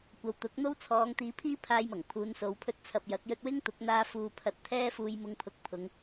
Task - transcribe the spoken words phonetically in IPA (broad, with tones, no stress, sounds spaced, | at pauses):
kʷ ɐ˨˧ w t̪ ʊ˨˥ k̚ n̪ o˥ w t͡sʰ ɔː˨˧ ŋ t̪ iː˨˧ pʰ iː˥ pʰ aː˧ j m ɐ˨˩ ŋ pʰ uː˨˧ n s o˨˧ w pʰ ɵ˧ t̚ t͡sʰ ɐ˨ p̚ j ɐ˨˥ k̚ j ɵ˧ t̚ w ɪ˥ ŋ t̪ ʊ˨˥ k̚ n̪ aː˧ f uː˧ pʰ ɐ˧ t̚ t̪ʰ ɛː˥ f uː˧ j m ʊ˧ ŋ pʰ ʊ˨ k̚ pʰ ʊ˨˧ ŋ